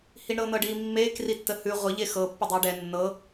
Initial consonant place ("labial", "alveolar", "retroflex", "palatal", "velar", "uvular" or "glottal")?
glottal